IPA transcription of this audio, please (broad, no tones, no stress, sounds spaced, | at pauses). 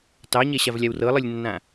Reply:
t ɑ ɲ ɛ ɕ a v lʲ a w r ɤ lˠ ɯ lʲ nː ã